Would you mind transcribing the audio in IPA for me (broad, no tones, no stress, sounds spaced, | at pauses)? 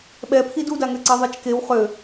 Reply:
ɓ ɛ pʰ i d u d a ŋ ø ǀ ɛ ðˤ e t͡ʃ k e w χ ø